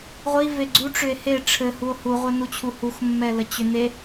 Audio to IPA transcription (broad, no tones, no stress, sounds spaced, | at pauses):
ʁʷ i v e ɡ͡ǀ u ʈ͡ʂ ʏ e̯ h e ʈ͡ʂʰ ɘ h u o̯ h u ʁʷ ɘ n u t͡ɕʰ u h u x mː ɛ l ə t͡ɕ ʏ n e